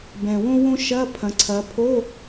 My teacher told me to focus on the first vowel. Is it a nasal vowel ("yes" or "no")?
yes